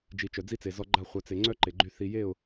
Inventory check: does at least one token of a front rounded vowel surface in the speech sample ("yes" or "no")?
yes